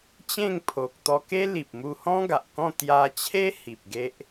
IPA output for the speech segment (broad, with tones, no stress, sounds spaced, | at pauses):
t͡ɕ ẽ˥˧ ŋ pʰ o˨ k̚ t̪ ɔ˧ k e˦ l i˨ p̚ m u˧ h ɔ̃˦ ɡ a˨ ʔ k ɔ̃˥˧ t̪ j a˧ t͡ɕʰ e˦ h i˨ p̚ ɡ e˦ ʔ